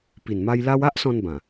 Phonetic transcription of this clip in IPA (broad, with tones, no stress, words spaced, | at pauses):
pi˨˩n ma˧jla˧wa˦ʔsɔ̃˧n bã˨˩